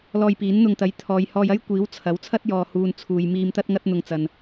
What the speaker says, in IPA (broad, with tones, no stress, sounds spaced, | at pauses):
l ɔː˧ j p iː˨˥ n n̪ ʊ˧ ŋ t̪ ɐ˨˥ j t̪ʰ ɔː˨ j h ɔː˧ j ɐ˥ j kʷ iː˨˥ w t͡sʰ ɐ˨˥ w t͡sʰ ɐ˥ t̚ j ɔː˨ h uː˨ n t͡sʰ uː˨ j m iː˧ m t̪ ɐ˥ t̚ ŋ ɐ˥ t̚ n̪ ʊ˧ ŋ t͡s ɐ˨ n